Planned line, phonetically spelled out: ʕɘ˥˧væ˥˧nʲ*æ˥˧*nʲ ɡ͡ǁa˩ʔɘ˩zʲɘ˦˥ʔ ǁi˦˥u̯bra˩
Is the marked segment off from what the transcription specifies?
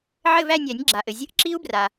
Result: yes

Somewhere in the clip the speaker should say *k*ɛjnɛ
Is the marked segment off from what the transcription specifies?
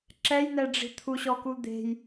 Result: yes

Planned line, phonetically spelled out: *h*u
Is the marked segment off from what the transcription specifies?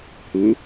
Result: no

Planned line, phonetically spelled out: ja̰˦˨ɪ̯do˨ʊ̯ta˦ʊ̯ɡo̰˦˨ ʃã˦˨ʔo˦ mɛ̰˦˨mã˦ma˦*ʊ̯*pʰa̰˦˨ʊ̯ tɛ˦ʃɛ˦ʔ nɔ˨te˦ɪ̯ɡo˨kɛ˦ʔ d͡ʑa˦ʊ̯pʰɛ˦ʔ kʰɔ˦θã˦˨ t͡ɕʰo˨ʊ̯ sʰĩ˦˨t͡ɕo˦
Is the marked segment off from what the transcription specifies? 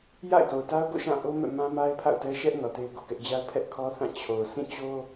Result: yes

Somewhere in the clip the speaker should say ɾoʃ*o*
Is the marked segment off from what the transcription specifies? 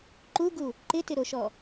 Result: yes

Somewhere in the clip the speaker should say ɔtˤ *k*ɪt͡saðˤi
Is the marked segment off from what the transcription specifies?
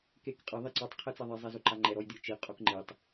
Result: yes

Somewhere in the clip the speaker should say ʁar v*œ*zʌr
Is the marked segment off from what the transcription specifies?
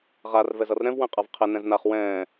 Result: yes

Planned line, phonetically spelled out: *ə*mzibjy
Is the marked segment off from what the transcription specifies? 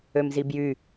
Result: yes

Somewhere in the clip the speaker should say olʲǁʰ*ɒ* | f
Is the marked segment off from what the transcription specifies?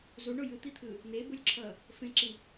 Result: yes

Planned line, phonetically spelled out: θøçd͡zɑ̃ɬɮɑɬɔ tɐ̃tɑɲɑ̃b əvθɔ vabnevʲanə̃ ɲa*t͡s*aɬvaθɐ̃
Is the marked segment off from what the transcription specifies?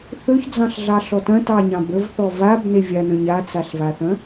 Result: no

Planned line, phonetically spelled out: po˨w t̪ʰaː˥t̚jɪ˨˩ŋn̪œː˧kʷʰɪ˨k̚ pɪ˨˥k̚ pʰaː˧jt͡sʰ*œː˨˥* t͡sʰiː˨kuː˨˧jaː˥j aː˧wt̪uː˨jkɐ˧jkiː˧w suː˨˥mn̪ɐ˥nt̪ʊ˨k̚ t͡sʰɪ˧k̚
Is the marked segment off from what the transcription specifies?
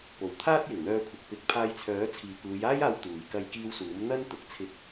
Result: no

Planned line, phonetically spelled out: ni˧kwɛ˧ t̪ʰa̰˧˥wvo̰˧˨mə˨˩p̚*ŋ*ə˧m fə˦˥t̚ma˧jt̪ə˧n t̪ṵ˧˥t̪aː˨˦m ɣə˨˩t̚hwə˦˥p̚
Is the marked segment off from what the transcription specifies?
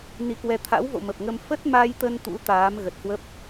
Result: no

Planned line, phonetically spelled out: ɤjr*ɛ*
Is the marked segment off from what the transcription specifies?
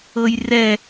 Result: no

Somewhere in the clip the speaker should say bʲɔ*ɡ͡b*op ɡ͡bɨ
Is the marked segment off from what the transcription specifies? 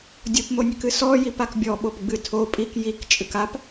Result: yes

